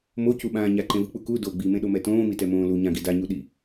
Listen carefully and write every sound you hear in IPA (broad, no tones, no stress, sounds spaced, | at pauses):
m o c u ɓ ãː ɲ a ǃ ẽ v ɯ k͡p u k u d o ɡ͡b i m ẽ ɗ o m ɛ t õː m i t ɛ m õː l u ɲ ã ɡ i d a ɲ u ɗ i